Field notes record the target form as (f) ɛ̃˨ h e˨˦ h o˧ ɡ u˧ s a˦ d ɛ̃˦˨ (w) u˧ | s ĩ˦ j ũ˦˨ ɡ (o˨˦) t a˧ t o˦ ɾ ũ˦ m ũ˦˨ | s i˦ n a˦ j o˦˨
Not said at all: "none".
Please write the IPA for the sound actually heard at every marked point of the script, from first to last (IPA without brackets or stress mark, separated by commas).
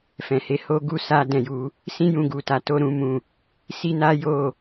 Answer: f, j, u˨˦